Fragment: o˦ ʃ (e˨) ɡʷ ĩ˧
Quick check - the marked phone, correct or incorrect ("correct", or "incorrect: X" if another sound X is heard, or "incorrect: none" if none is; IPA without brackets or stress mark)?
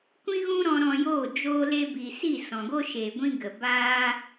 correct